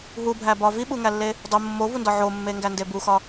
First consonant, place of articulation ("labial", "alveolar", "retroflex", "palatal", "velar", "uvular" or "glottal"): glottal